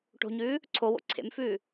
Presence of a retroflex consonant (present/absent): present